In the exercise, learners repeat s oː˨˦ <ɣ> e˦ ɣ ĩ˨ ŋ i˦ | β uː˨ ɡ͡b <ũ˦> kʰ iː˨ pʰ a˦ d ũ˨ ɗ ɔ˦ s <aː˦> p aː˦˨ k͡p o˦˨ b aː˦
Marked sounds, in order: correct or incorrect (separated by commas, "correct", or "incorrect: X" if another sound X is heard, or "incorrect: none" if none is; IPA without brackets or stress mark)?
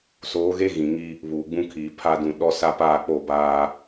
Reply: correct, correct, incorrect: a˦